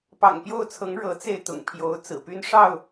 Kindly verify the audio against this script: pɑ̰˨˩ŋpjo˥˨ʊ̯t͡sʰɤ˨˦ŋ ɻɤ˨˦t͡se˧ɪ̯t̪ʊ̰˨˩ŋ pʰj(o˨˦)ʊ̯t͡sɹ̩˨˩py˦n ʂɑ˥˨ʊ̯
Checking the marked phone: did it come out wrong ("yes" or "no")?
no